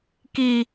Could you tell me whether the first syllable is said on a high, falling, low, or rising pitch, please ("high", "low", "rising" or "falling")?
low